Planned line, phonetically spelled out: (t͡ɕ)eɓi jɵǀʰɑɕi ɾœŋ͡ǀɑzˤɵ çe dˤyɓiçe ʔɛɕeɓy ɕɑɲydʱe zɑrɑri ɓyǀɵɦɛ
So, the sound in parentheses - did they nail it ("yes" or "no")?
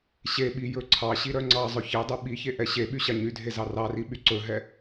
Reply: no